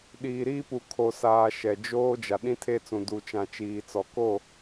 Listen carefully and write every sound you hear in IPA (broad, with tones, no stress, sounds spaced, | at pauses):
ɗ iː˨ ɾ iː˦ p u˨ kʰ o˨ s aː˨ ʃ ɛ˨ d͡ʒ oː˦ d͡ʒ a˨ ɗ ĩ˦ tʰ e˦ t͡s ũ˨ d u˨ t͡ʃ ã˨ t͡ʃ iː˨ t͡s ɔ˨ k o˦˨